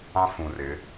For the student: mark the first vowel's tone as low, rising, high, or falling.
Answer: high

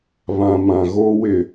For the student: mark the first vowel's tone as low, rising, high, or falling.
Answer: low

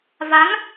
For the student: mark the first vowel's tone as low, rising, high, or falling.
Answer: rising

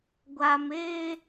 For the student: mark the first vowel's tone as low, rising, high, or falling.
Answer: low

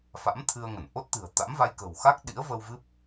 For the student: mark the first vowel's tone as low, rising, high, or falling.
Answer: rising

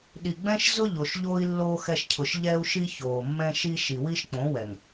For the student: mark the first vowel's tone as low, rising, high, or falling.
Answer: low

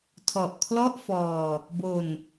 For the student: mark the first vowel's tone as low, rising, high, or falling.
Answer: low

